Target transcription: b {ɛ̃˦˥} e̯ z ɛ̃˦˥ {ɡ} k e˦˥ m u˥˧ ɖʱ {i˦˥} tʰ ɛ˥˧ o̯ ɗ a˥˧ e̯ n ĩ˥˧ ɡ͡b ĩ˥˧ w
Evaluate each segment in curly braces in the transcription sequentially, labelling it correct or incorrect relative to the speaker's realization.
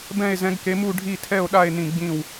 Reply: incorrect: ɛ̃˥˧, correct, incorrect: i˥˧

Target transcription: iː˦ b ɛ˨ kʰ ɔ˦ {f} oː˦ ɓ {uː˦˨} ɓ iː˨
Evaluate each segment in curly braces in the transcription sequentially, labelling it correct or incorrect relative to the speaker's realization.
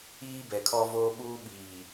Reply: incorrect: v, incorrect: uː˦

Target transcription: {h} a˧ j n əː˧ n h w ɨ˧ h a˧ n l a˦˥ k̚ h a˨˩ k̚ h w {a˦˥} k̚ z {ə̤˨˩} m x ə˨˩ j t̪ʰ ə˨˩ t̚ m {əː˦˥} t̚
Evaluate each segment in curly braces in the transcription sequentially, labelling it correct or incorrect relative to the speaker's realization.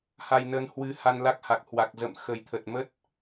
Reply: correct, incorrect: a˨˩, incorrect: ə̰˧˨, incorrect: ə˦˥

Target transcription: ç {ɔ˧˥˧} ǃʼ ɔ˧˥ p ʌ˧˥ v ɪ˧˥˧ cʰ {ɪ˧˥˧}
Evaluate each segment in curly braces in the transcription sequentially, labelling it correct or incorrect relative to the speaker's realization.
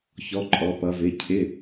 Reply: correct, correct

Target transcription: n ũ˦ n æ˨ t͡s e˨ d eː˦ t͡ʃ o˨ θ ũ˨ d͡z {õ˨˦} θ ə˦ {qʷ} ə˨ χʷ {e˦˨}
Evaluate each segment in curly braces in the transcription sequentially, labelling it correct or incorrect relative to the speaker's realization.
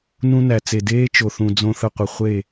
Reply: incorrect: õ˦, correct, correct

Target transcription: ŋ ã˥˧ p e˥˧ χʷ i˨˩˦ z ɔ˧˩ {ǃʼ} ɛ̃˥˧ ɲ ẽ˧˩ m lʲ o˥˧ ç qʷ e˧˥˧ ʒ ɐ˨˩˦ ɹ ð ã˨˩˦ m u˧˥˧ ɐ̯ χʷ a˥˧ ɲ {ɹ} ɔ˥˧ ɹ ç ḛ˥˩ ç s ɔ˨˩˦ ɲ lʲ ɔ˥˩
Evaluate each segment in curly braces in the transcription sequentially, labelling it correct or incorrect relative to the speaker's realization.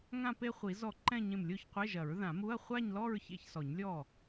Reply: incorrect: ǃ, incorrect: l

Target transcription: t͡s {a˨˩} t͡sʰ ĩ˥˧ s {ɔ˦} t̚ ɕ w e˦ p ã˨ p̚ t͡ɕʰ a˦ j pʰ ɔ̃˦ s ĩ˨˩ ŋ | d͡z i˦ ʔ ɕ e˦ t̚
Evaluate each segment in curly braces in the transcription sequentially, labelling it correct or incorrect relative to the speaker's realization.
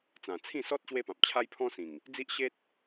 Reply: incorrect: ã˨˩, correct

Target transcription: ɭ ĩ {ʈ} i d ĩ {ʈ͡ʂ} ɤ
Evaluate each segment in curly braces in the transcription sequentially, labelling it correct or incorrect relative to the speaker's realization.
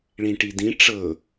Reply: correct, correct

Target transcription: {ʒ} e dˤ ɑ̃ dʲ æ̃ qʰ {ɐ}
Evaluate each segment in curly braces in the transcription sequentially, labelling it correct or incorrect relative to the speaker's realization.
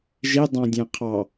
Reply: correct, incorrect: ɑ

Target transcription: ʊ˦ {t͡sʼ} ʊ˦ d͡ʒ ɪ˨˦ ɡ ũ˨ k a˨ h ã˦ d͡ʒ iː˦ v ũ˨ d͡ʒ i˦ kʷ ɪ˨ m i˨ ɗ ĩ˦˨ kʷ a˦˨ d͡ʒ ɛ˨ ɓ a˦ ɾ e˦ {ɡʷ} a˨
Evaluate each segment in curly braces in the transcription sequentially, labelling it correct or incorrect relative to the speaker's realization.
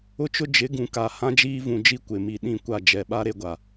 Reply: incorrect: t͡ʃ, correct

